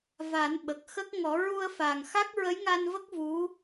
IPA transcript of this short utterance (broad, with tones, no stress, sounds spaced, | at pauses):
v a˨˩˦ n ɓ ə˨˩ k̚ x ə˦˥ k̚ ŋ ɔ˨˩˦ ɹ u˧ ə̯ f a˨˩ ŋ x a˦˥ k̚ ɹ ə˧˥ j ŋ a˧ n v ə˦˥ k̚ v u˧˥